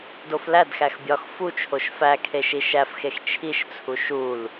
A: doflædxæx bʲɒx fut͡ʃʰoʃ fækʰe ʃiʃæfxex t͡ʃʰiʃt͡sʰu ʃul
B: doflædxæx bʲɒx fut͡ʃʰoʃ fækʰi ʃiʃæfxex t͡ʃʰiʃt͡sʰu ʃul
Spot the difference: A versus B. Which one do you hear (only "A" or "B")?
A